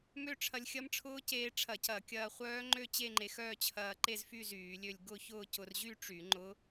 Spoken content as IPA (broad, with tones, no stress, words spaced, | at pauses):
mø˥˧ʈ͡ʂʰɐ˧lʲxʲɐ˦˥m ʈ͡ʂʰʊː˦˥ceː˧ʈ͡ʂʰɐ˧˩˧cɐ˧˩˧ kʲɐː˧χʷœː˦˥ŋ͡ǃø˥˧ t͡ɕe˥˧ŋ͡ǃe˧xœː˥˧ t͡ɕʰɐː˧ǃe˥˧zfy˥˧ zyː˧˩˧lʲø˥˧lʲ ɡʊ˥˧çʊː˥˧ cʊ˧rʑy˥˧ʈ͡ʂy˧˩˧ ŋ͡ǃʊ˦˥